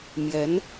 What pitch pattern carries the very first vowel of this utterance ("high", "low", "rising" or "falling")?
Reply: rising